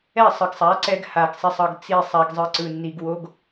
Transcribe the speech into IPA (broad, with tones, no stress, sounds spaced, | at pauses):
ɛ˦˨ sˤ ɯ˨ ɡ sˤ a˨˦ ǀ ɛ˧ ɡ h a˨ ɡ sˤ i˨ sˤ ʌ˨ ɡ t͡s i˦˨ sˤ a˧ ɡ zˤ ɯ˧ ǀ ɯ˨ nː i˨ ɡ w o˦ ɡ